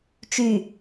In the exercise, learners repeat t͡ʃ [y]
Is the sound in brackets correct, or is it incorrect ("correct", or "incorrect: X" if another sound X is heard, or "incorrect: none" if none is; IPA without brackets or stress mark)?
correct